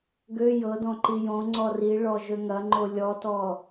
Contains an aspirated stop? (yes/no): no